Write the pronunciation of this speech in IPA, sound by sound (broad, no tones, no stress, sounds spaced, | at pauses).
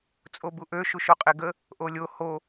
t͡sʼ o b u ʔ ø ʃ u ʃ o qʼ e ɡ ə | ʔ o lʲ o h o